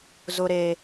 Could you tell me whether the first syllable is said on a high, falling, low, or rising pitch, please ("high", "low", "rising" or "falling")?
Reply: low